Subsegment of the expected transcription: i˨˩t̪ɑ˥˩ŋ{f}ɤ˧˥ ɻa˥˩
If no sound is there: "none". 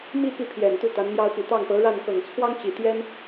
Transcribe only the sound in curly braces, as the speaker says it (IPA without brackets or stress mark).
p